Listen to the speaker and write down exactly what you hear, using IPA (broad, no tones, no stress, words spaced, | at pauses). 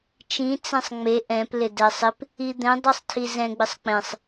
t͡ʃĩ t͡sɛ̃sˤŋ͡me ʔɛ̃p lɪdɛsˤɪp | id̪ɛ̃ dˤisˤtʰizɛ̃ ɡ͡bɪsˤk͡pẽsˤ